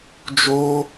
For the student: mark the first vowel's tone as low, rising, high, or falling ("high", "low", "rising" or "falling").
high